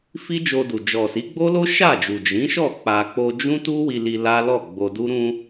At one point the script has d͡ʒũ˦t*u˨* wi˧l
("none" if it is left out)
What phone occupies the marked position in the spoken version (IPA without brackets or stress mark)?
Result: u˦